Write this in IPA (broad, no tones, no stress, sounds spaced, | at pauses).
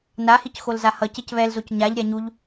n a h i c x o l z a h ʌ c e c β ɛ l z o c ɲ a ʎ ɾʲ a ɲ u ʎ